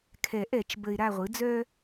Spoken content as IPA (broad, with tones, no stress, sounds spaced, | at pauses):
kʰ ɛ˨˩˦ ʔ ɛ˨˩˦ t͡ʃ b ə˨ ɪ̯ ɾ a˦˨ ʁʷ ɯ˩˥ d͡z œ˥